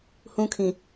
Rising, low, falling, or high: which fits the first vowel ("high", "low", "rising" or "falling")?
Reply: high